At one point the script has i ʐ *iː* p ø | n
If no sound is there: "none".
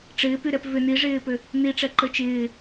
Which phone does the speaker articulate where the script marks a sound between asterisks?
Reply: ɪː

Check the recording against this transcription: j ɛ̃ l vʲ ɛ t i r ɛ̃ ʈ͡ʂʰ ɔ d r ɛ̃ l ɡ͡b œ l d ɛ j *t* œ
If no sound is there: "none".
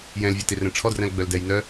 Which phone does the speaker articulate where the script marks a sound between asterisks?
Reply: n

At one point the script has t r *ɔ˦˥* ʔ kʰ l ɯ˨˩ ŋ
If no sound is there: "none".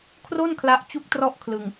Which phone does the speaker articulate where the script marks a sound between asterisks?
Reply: ɔ˥˩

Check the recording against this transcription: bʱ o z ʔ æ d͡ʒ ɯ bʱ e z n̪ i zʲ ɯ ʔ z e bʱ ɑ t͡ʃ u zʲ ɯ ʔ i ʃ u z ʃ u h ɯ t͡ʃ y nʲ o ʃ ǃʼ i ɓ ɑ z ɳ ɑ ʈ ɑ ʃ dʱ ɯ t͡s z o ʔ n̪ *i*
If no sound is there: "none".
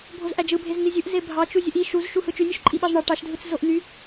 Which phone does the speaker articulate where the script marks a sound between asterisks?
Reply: y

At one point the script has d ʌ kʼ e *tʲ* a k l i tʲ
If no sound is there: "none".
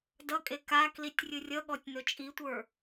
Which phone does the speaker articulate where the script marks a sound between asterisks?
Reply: k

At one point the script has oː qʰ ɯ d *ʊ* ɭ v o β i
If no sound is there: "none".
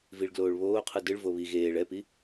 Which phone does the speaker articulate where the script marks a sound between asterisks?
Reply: ɯ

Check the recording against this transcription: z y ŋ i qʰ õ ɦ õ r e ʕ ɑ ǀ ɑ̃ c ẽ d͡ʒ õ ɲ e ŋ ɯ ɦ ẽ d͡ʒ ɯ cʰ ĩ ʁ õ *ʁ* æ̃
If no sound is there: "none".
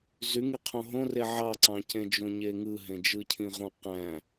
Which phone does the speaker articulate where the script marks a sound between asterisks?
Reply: q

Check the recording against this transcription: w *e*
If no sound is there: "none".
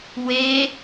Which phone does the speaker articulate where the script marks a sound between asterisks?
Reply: e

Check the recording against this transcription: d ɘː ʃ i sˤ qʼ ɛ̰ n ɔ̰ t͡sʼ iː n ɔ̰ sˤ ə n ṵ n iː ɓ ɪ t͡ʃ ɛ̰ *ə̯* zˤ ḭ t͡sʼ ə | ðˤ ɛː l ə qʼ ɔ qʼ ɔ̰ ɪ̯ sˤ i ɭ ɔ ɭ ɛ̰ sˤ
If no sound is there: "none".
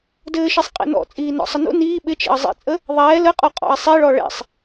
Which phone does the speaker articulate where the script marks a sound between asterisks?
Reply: ə̯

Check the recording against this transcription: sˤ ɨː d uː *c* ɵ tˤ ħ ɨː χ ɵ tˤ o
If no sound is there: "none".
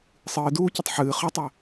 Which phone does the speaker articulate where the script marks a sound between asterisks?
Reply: c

